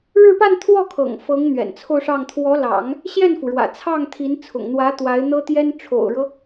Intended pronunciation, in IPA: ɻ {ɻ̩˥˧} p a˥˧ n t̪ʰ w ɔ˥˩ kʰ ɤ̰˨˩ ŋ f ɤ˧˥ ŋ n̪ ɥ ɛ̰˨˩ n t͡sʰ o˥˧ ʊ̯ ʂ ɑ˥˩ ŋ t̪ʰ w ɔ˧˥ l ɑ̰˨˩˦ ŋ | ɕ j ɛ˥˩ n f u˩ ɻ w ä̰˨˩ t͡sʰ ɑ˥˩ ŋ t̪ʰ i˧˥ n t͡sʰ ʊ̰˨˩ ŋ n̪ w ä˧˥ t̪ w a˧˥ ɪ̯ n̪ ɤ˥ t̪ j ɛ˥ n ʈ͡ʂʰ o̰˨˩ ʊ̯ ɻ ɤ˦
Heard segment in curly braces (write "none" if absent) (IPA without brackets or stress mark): ɻ̩˥˧